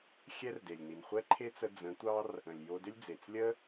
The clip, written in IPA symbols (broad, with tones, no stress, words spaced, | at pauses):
xʲɛ˦rde˨lʲni˨n χʷɛ˦ǃʰe˦t͡sə˧ d͡zə̃˨˦tʷɑ˦r | ə̃˨lʲjo˧dʏ˦lʲd͡ze˨t͡s lʲə˦